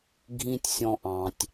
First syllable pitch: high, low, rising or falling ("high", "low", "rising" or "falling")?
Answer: high